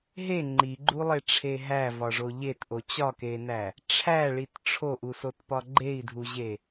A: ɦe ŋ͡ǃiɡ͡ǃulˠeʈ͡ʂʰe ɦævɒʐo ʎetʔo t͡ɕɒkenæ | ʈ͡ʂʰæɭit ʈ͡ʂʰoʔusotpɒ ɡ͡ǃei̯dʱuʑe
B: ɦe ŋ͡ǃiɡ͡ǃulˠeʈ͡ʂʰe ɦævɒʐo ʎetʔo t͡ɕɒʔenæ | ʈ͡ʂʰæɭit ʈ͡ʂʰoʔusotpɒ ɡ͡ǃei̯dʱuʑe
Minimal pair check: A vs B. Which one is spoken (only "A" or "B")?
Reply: A